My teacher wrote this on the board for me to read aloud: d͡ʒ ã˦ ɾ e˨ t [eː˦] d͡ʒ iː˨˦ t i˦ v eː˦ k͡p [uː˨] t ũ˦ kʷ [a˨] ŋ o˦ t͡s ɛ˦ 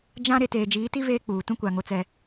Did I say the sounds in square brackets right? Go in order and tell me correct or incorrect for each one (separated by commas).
incorrect, correct, correct